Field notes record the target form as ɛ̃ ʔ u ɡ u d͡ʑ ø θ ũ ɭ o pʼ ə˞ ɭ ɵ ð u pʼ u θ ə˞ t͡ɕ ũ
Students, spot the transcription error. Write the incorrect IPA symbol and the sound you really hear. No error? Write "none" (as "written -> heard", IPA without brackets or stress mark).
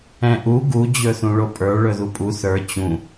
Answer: ø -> ɵ